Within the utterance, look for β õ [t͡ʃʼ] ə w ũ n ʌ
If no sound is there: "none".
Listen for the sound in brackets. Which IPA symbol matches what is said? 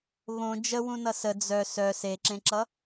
d͡ʒ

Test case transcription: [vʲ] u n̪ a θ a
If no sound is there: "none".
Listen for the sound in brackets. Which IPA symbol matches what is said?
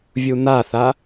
vʲ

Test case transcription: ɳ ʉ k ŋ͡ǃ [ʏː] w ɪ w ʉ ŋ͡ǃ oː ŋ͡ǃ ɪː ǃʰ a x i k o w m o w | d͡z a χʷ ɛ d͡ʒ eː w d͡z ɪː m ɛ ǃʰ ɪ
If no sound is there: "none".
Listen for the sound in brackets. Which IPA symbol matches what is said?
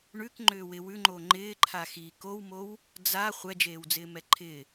ʏː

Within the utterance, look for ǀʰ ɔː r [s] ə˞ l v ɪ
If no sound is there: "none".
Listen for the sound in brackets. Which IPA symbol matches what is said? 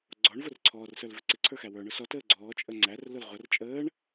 s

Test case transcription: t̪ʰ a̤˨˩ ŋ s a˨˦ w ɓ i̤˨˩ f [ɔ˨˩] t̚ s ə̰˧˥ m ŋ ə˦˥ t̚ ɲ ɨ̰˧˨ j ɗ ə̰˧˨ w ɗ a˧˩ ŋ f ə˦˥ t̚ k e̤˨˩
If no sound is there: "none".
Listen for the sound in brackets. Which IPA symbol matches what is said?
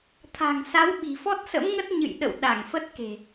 ɔ˦˥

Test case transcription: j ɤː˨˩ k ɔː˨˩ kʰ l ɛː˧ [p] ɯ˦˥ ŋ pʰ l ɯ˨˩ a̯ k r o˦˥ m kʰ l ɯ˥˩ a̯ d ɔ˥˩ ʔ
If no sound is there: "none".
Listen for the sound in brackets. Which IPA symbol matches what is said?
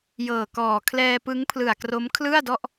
p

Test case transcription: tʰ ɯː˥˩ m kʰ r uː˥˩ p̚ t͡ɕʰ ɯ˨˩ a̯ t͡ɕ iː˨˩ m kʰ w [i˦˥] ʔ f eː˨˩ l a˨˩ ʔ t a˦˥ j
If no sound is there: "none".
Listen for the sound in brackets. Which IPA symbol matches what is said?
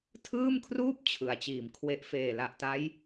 e˦˥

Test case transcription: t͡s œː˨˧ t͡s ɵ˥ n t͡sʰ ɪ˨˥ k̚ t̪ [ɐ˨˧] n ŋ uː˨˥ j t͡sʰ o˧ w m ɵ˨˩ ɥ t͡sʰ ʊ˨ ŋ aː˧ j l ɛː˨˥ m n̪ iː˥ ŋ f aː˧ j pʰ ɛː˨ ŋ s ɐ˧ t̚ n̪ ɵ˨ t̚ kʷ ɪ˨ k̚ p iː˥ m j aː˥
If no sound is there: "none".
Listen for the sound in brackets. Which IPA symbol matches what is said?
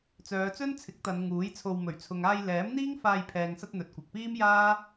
ɐ˨˧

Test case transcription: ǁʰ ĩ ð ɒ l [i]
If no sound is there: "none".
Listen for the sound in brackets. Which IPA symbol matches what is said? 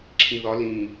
ĩ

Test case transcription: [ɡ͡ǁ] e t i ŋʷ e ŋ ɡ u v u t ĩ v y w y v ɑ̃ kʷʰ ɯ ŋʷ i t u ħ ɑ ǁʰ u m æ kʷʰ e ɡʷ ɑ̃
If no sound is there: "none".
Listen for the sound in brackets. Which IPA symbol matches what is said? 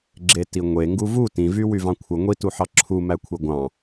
ɡ͡ǁ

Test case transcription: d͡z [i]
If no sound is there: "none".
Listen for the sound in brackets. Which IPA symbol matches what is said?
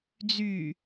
y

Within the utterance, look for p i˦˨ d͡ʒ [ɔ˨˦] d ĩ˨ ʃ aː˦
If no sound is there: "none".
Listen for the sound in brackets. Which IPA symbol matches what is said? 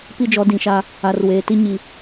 ɔ˨˦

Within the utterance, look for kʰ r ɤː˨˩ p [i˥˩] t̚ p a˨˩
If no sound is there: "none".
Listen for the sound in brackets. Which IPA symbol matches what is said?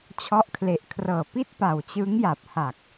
i˥˩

